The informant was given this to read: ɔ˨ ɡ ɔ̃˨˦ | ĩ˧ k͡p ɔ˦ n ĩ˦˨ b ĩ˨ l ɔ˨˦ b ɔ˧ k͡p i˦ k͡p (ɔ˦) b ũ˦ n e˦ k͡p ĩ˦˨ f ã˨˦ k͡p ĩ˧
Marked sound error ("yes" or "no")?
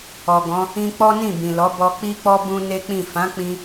no